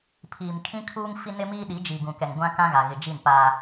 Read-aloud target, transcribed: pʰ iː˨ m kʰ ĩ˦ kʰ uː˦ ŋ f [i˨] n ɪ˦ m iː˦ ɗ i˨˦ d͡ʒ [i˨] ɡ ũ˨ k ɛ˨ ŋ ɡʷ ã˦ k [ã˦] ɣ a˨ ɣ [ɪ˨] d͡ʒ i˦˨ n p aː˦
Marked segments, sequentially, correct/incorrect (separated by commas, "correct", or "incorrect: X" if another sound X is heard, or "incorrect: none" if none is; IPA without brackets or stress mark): incorrect: i˦, correct, correct, correct